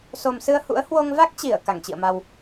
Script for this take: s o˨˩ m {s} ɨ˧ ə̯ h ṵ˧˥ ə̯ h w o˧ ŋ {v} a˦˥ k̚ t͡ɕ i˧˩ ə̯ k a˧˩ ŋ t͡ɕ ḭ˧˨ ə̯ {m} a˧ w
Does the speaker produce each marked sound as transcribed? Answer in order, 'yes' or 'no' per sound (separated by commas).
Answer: yes, yes, yes